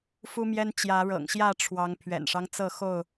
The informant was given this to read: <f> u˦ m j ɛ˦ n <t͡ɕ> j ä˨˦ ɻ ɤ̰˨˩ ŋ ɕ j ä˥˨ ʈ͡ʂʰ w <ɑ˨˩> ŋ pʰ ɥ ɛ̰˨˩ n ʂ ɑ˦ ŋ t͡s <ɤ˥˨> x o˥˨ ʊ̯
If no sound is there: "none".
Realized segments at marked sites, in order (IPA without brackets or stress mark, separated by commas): f, t͡ɕ, ɑ˨˦, ɤ˥˨